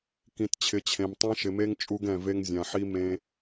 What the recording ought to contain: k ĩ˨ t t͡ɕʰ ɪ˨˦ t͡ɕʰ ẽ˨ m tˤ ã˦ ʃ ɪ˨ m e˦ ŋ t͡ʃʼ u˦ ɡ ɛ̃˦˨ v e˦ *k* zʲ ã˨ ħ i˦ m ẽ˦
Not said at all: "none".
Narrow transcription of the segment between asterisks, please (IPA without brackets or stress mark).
ŋ